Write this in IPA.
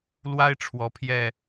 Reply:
l w a˦ ɪ̯ ʈ͡ʂʰ w ɔ˨˦ pʰ j ɛ˥˨

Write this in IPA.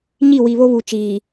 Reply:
ɲ i˦˨ w i˨ β o˦ β u˨ t͡ʃ iː˨

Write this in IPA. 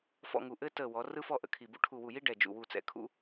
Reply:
f ɔ̰˥˧ ŋ u˧˩ ʔ ɘ˥ t ə˧˩ w ɔ˩˧ r ɯ˥ f ɔ˥˧ ʔ ə̰˩˧ kʰ i˧˩ b ṵ˥ ʈʰ u˧˩ w u˧˩ j i˥ ɖ ɛ˧˩ d͡ʒ ṵ˧˩ w u˧˩ t͡s ɛ̰˧ kʰ ṵ˥

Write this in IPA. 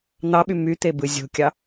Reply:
n̪ ɑ ɓ y m y t̪ e b ɯ zʲ o̤ kʲ ɑ

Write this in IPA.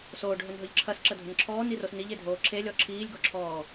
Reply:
s oː ɖ ɦ ɵ n ɦ ɵ ʎ ǁʰ ɐ s ǁ ə dʱ ə n ǁʰ ɔː n i r o s n i ʎ e dʱ oː ǁʰ e lʲ ɔ ǁʰ iː lʲ ɡ ɔ ǁʰ ɔː

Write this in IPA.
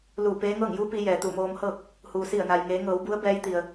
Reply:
l uː˧˩ p eː˧˥ ŋ ɤː˥˨ ŋ j u˧˥ p i˩˧ j ɛː˩ t̪ u˧˩ m oː˧ m h ɤː˥˨ k̚ | h u˩ s i˧˩ ə̯ n a˩ j ŋ eː˩˧ ŋ ɤː˩˧ w b u˧˥ ə̯ b ɛː˧˥ j t̪ i˩ ə̯

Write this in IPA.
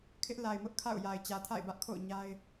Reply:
kʰ ɪ˦ ʔ l a˨ ɪ̯ m ʊ˦ ʔ kʰ a̰˦˨ ʊ̯ j a˨ ɪ̯ t͡ɕ ä˨ tʰ a̰˦˨ ɪ̯ b ä˦ ʔ kʰ o̰˦˨ ʊ̯ ɲ a˦ ɪ̯

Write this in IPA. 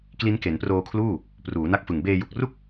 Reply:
k l i˦˥ n k e˩˦ n p r oː˧ kʰ l uː˥˩ | p r uː˩˦ n a˦˥ k̚ f ɯ˨˩ ŋ b eː˧ j u˨˩ k̚ r u˥˩ k̚

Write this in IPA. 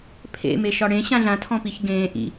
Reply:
pʰ ḛ m e ʃ ɒ ɽ ẽ ɕ ã ɮ ã tʰ ɔ̃ p i ç ɡ ẽː ʔ ḭ

